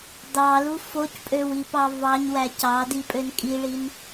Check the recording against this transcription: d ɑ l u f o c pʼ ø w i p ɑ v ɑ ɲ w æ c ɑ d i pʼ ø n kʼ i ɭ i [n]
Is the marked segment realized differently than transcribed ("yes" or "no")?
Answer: no